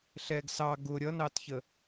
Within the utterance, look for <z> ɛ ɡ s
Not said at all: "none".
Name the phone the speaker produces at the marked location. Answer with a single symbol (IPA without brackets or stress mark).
ɬ